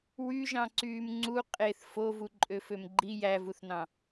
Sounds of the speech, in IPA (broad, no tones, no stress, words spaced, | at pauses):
wyʒɑ̃ ǀyːmŋ͡ǀu qʼeθ fovu ǃʼøfømɡ͡ǃi jævuθnɑ̃